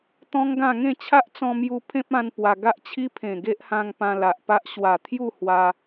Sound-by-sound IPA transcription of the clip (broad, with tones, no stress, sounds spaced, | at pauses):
t̪ ɔ̃˦ ŋ ɡ ã˥˧ ŋ ẽ˥˧ t͡ɕʰ a˦ ʔ t͡s ɔ̃˧ m j u˧ pʰ ẽ˦ p̚ ã˧ n p w a˧ ɡ a˦ ʔ t͡ɕʰ i˦ pʰ ẽ˨˩ ɡ e˦ ʔ h ã˧ ŋ p ã˧ l a˨ ʔ p a˦ ʔ ɕ w a˨˩ t̪ʰ j u˥˧ h w a˧